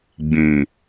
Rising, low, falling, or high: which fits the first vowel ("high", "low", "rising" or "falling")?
low